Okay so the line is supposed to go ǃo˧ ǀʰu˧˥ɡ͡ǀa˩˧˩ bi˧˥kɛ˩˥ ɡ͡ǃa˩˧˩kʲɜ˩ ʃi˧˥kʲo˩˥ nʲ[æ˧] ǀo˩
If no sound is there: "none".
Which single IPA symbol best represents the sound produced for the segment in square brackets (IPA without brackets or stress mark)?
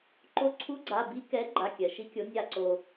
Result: a˧